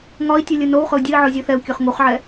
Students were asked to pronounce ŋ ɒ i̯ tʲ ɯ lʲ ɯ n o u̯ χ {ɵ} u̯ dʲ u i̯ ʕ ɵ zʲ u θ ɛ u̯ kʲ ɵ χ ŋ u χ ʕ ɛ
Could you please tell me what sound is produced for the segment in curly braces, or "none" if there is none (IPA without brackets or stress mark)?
ɵ